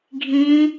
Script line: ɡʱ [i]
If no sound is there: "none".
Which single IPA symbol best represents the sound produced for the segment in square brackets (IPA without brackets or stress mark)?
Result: ĩ